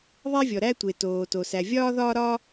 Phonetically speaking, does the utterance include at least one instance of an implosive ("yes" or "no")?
no